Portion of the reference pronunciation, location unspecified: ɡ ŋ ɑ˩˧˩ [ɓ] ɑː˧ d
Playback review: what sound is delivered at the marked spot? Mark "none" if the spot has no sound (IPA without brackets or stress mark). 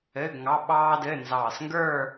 ɓ